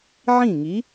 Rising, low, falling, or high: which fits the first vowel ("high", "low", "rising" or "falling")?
falling